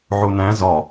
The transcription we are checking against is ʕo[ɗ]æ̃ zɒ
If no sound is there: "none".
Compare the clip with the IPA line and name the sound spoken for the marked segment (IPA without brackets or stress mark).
n